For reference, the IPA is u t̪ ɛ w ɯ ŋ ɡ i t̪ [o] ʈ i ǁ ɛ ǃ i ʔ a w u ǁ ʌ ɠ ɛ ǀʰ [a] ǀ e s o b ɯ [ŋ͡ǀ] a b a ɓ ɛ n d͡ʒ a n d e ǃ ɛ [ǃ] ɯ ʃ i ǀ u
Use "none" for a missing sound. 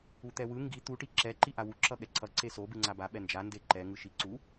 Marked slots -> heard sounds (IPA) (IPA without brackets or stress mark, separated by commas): u, ʌ, ŋ͡ǀ, ŋ